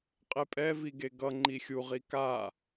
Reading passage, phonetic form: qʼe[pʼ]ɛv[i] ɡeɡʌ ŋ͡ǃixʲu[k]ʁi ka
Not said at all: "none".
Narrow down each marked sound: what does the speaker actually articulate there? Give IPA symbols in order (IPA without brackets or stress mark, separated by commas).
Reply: pʼ, i, none